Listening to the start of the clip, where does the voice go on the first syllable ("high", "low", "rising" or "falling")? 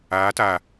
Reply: rising